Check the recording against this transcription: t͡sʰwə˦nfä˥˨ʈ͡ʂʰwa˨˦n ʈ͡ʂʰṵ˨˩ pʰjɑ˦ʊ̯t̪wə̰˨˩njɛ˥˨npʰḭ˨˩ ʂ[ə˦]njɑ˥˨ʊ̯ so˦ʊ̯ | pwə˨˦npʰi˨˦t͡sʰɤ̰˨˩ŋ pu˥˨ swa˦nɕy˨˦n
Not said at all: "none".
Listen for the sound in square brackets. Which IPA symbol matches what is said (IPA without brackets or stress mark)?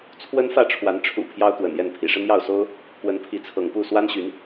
ə˦